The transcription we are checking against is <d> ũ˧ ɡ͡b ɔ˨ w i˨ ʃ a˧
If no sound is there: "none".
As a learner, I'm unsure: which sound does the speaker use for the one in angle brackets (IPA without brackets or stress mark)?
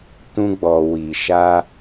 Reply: t